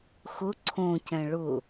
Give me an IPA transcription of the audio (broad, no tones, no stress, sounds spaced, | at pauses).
x ʊ ǀʰ õ c ɛ̃ ɭ ʊ